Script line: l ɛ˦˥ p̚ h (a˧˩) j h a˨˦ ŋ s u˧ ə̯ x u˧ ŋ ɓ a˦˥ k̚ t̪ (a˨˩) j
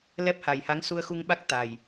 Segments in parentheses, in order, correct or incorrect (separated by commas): incorrect, correct